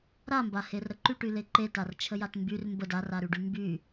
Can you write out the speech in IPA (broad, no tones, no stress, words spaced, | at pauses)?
ɾambaherɾə ǃyʈyle ǃetart͡ʃʰəjat mbyr mbəd araɾyɖy mby